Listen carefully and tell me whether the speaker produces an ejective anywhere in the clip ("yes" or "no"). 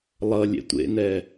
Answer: no